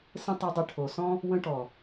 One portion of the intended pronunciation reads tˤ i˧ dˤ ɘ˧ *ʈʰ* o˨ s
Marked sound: correct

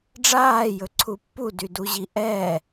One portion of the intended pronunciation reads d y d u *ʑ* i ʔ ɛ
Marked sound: correct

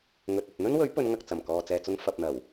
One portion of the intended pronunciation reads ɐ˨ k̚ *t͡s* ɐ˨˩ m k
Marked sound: correct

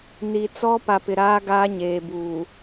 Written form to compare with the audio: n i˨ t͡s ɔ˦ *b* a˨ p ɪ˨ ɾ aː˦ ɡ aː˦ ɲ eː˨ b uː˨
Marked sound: incorrect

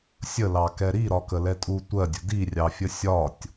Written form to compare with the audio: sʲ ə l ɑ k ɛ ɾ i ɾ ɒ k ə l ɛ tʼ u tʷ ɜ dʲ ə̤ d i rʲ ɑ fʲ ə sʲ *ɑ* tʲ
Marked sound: incorrect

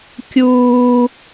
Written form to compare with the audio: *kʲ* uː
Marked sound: correct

